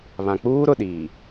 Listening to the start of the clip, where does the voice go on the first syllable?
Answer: low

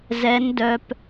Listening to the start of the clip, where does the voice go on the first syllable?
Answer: rising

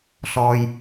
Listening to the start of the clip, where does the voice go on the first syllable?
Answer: low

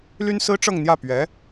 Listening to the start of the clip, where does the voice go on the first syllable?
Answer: high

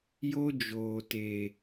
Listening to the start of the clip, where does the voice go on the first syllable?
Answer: high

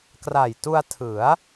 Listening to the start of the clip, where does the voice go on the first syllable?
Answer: low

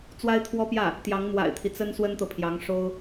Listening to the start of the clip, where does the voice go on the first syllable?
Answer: high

